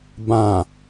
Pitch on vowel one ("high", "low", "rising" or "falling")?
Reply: low